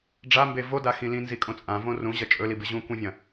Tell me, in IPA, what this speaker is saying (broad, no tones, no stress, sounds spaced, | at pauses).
ɖ͡ʐ a m b e v o d a x ĩ l ĩ n z i kʼ õ t͡sʼ ã v õ r ũ ʑ ɐ t͡ʃʼ ɵ l i b ɨ ʑ ũ kʷ ĩ vʲ ɐ̃